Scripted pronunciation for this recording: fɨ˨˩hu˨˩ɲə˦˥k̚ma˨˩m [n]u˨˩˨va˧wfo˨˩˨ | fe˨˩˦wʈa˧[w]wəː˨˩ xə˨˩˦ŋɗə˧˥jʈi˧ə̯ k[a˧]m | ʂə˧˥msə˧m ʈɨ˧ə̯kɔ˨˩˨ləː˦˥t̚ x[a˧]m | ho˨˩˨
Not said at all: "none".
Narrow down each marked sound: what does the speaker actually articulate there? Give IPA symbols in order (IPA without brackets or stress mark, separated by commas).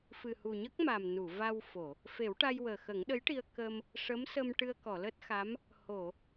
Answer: n, j, ə˧, a˧˥